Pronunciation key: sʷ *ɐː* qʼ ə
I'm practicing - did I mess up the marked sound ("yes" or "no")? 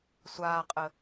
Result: yes